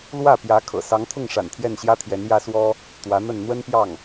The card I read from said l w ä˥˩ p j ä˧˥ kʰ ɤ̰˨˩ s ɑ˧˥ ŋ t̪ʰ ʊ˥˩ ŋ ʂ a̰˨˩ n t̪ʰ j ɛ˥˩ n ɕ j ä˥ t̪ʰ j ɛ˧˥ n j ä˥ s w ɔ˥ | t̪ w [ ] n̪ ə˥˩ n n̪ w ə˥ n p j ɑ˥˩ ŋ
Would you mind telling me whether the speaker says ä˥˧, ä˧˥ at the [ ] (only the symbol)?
ä˧˥